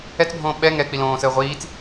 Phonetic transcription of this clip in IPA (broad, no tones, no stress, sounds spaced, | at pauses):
ɛ t͡s bʱ õː ɓ ɛ ŋ ɛ k͡p i l õː s əː ʁʷ iː t͡s